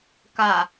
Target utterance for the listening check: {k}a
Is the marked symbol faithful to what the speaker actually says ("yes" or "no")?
yes